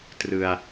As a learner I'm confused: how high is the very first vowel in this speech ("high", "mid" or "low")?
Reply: high